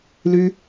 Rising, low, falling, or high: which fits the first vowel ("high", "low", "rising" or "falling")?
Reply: high